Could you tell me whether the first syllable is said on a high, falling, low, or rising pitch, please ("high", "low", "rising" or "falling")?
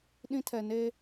high